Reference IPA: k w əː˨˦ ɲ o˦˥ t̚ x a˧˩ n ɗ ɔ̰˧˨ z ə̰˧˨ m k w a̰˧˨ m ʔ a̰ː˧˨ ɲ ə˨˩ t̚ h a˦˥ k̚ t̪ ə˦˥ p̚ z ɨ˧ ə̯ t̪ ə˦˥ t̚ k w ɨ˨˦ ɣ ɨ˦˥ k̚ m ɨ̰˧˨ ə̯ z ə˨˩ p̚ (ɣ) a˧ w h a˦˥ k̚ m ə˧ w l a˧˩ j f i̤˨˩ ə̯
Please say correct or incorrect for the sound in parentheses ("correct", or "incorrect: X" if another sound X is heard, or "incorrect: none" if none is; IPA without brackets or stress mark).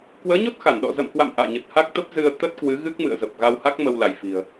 correct